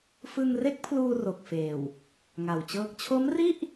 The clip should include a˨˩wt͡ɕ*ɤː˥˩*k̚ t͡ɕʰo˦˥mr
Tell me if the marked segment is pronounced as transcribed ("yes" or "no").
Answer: yes